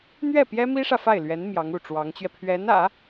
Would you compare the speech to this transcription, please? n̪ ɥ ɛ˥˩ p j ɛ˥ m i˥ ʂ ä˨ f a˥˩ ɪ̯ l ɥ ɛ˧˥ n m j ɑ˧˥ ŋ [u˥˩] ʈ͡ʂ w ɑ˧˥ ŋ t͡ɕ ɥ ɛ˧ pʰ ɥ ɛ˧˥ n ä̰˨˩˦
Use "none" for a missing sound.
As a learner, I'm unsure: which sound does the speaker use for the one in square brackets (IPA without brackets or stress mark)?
u˥˩